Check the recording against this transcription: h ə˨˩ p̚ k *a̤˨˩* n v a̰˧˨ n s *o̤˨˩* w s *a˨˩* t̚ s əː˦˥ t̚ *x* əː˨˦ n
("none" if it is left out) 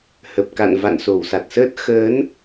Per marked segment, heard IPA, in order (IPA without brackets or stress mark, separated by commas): a̰˧˨, o˧˩, a˨˩, x